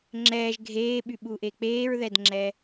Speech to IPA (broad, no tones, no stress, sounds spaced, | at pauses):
ŋ͡ǁ ɛː ʒ ɡʱ eː ɓ y ɓ u ʔ e k͡p eː ɹ ð ɛ d ŋ͡ǁ ɛ